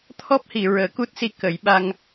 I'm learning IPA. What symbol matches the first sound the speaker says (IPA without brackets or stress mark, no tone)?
t̪ʰ